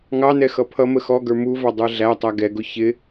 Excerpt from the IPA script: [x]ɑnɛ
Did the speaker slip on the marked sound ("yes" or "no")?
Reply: yes